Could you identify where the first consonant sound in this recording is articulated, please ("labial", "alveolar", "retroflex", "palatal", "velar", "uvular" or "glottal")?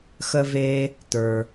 velar